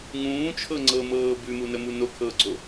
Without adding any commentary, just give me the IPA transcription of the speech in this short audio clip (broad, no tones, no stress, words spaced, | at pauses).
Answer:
ŋũːt͡ʃʰɤŋ͡ǀɤmɤː bʉmunəmu nokʰɤːɡ͡ǀo